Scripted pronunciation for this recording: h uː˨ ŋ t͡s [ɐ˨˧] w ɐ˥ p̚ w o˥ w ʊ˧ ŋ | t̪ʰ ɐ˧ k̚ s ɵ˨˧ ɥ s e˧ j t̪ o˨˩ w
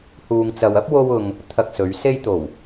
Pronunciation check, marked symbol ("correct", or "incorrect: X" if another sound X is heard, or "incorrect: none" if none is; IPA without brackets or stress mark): incorrect: ɐ˨